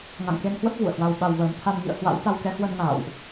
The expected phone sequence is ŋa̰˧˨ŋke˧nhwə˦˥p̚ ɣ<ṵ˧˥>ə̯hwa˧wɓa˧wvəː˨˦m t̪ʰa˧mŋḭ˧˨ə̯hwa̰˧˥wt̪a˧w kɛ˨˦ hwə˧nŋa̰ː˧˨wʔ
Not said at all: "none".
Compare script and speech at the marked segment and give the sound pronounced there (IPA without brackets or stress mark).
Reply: ṵ˧˨